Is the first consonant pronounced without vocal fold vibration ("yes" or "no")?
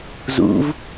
no